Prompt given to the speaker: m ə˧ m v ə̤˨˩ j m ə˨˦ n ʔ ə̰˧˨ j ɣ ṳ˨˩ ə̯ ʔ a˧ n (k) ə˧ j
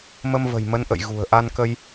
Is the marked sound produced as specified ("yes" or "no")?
yes